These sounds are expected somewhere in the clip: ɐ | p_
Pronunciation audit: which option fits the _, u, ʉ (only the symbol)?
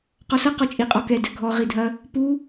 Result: u